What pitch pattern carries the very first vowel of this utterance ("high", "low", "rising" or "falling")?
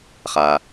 low